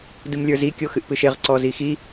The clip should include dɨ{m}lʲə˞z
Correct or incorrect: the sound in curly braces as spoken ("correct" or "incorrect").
correct